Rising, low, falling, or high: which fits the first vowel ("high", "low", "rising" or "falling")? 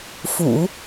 low